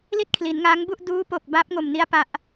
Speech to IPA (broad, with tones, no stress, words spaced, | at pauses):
li˥˩t̚kʰli˩˦nŋaː˦˥ŋbu˥˩ʔ duː˦˥po˨˩k̚ baː˦˥p̚ŋo˨˩mni˦˥a̯ pa˦˥ʔ